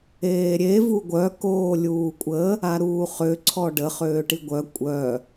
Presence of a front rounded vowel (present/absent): present